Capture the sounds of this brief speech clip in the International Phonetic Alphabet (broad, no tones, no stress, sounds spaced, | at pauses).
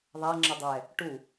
ðˤ a ŋ͡ǁ ə dˤ ɛ | ʈ u